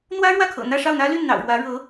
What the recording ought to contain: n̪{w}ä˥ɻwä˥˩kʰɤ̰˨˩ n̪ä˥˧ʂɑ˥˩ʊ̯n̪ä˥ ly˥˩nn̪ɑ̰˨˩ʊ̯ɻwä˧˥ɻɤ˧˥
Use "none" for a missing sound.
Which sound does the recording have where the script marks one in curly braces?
w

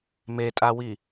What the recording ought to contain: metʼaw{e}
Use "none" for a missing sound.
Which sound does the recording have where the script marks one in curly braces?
i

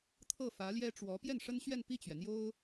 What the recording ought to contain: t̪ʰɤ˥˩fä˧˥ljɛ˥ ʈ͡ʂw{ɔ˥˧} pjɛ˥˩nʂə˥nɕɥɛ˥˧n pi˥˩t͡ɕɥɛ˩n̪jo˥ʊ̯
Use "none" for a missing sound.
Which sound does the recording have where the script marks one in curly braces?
ɔ˧˥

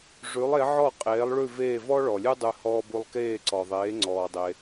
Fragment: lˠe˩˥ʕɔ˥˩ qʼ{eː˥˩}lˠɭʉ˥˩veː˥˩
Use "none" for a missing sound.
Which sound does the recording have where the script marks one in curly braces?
eː˩˥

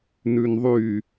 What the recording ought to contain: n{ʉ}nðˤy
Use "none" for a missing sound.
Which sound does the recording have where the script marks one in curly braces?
ʉ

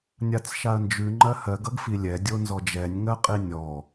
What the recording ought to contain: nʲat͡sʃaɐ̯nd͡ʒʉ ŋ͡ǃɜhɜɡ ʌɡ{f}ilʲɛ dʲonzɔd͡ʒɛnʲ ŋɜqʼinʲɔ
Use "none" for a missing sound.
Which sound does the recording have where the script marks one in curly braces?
f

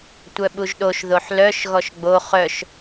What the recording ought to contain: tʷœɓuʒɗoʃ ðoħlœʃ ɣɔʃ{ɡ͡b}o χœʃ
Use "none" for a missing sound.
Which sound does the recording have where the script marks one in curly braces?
ɡ͡b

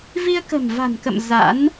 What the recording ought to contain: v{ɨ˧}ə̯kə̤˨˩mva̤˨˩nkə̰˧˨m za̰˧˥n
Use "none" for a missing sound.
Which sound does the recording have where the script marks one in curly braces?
i˧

